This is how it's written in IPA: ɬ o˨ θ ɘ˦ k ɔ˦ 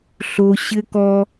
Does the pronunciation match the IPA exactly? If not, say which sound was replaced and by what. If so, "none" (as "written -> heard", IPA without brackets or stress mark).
θ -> ɕ